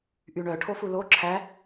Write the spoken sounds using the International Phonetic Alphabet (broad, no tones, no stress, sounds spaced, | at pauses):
ʔ y ɳ œ ʈʰ o f u l o ǁʰ æ